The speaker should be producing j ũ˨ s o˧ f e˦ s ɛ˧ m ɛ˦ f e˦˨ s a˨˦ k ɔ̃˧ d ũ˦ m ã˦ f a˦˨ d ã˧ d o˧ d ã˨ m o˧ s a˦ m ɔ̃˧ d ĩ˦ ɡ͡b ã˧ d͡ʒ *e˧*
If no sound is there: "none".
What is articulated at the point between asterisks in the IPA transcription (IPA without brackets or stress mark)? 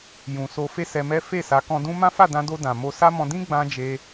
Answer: e˧